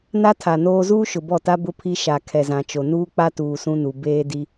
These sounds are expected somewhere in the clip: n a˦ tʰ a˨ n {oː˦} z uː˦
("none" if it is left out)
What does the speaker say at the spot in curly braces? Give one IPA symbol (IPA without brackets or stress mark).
oː˦